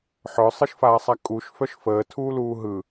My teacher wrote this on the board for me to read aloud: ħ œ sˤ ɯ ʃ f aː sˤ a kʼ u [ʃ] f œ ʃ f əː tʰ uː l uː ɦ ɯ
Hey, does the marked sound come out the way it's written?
yes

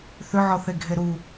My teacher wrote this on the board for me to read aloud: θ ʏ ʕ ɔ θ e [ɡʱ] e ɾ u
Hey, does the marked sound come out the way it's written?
yes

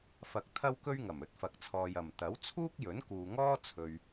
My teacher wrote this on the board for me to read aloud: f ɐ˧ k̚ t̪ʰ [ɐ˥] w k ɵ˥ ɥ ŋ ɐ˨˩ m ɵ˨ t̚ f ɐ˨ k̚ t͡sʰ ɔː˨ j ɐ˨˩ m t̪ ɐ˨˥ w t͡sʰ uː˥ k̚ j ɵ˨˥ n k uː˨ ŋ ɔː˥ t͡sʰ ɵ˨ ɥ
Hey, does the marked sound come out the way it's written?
yes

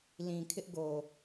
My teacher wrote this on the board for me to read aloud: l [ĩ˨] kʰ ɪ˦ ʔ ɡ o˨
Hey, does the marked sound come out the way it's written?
yes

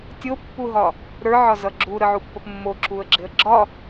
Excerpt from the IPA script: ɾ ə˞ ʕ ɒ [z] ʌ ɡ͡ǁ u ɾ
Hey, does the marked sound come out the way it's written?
yes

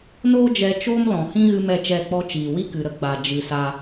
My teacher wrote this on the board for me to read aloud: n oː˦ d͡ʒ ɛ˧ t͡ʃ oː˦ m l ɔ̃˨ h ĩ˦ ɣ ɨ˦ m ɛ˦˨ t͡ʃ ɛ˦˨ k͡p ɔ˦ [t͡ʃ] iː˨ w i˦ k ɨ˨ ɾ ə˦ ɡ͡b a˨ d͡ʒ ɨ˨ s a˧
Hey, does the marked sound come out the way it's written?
yes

